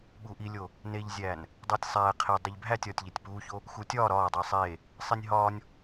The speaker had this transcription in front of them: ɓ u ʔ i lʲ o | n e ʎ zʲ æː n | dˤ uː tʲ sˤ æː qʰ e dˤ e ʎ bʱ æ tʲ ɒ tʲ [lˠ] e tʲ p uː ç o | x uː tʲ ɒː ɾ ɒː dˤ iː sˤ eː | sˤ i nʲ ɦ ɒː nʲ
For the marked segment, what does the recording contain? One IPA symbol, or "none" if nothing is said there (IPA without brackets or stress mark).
ʎ